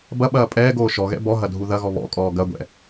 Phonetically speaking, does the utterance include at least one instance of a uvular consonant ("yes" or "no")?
no